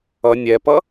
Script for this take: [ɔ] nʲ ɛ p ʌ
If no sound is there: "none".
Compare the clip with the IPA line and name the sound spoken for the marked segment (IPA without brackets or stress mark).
ʌ